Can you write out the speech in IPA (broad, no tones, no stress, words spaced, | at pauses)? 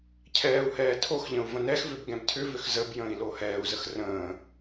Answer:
cʰɛːu̯hɛː tʰoxʎə̃u̯ və̃nɛxvʏb ɡɛ̃btʰʏvʏx zəb jə̃ːi̯lohɛːu̯zəx rə̃ː